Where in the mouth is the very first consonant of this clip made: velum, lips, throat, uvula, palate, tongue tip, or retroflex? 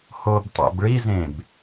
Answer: throat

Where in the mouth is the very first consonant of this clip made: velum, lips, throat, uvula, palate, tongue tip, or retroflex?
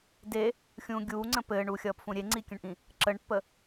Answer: tongue tip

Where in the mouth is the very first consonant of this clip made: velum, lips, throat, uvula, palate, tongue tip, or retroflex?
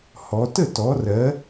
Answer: throat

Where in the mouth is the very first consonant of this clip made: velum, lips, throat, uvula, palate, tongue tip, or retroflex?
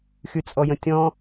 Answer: velum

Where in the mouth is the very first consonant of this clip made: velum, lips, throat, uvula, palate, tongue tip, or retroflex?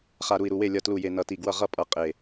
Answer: uvula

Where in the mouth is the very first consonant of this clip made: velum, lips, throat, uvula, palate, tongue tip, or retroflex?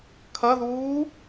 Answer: velum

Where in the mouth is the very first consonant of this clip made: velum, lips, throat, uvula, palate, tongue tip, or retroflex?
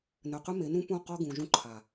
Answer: tongue tip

